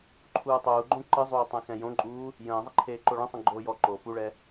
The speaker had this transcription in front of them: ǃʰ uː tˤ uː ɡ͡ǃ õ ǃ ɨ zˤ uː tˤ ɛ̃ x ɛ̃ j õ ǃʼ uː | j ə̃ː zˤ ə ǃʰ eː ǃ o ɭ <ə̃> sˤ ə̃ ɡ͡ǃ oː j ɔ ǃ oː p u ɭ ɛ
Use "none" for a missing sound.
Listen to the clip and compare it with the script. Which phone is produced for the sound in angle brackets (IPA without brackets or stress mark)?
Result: ə̃